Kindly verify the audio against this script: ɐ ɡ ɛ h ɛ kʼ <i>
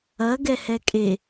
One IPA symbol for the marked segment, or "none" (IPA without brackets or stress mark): e